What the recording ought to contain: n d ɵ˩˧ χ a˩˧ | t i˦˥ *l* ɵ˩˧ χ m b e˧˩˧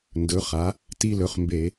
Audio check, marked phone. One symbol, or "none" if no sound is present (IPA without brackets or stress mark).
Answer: l